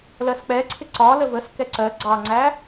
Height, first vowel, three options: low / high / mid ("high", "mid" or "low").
mid